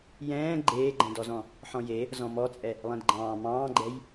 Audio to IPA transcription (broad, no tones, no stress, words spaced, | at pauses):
jɛ̃ː ɡ͡ǃeːɡ͡ǃɛ̃dɔzɔ̃ | ħɔ̃je | zɔ̃mɔt͡sʼɛ | lˠɛ̃dɡ͡ǃɑ̃ː mɑ̃ːɡ͡ǃɛj